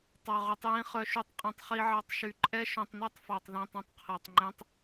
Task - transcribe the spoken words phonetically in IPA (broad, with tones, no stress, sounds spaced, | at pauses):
tˤ ɑ˧ ʁ y˧ tˤ j ĩ˦˥ χ œ˦˥ ʃ y˦˥ tˤ qʼ ĩ˧ tˤ χ i˦˥ ʕ ɑ˦˥ tˤ ʃ y˧ ǃʼ ɛ˦˥ ʃ œ̃˧ tˤ n ɛ˦˥ tˤ f ɑ˧ tˤ ð ĩ˧ tˤ ĩ˧ tˤ qʰ æ˧ tˤ ŋ͡ǃ ẽ˦˥ tˤ